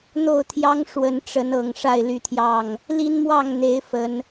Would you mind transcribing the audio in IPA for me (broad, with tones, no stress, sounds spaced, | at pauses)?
n̪ o˥˨ ʊ̯ t̪ʰ j ɑ˦ ŋ ʂ w ə˨˦ n ʈ͡ʂ ə˨˦ n ɤ˨˩ ŋ ʂ a˥˨ ɪ̯ l y˥˨ t̪ʰ j ɑ˥˨ ŋ | l i˦ n m w ɑ˥˨ ŋ n̪ e˨˦ ɪ̯ f ə˨˦ n